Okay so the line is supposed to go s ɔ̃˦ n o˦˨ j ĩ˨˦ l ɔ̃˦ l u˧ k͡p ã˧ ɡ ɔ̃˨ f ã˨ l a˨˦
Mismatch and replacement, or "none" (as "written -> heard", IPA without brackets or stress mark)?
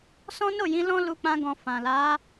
none